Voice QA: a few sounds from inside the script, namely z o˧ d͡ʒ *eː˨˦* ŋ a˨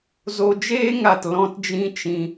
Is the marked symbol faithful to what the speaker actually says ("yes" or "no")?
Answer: no